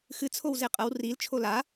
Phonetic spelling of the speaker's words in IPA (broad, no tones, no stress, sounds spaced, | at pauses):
x ɨ t͡sʰ o w z e qʼ ɐ w r i l t͡ʃʰ o l a